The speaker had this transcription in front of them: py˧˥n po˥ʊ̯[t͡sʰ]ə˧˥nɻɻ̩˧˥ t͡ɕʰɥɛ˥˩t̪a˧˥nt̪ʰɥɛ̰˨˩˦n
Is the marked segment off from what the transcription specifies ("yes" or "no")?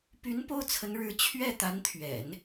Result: no